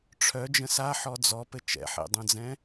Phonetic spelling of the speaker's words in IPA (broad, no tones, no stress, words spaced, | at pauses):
ʈ͡ʂʰœ d͡ʒə̃sa ħɔd͡zɔpɘ t͡ʃɛ̰ħḛdˤœ̃d͡zɛ̃